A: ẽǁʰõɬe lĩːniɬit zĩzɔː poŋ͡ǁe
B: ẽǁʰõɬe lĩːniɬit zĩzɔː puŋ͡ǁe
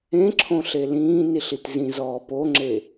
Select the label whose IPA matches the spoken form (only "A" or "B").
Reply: A